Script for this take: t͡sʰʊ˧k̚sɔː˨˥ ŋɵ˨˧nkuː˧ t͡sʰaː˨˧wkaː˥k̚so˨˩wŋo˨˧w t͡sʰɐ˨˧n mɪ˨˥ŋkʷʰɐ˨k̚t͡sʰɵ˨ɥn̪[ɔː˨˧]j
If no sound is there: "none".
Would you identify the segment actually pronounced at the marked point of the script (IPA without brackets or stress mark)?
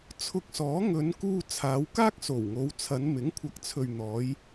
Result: ɔː˨˧